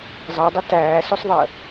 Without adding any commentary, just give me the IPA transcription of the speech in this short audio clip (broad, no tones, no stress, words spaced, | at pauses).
zˤɑdˤə tæːsusˤðˤəː